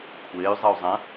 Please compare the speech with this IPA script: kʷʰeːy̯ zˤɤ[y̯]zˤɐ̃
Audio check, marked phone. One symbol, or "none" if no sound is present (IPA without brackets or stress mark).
u̯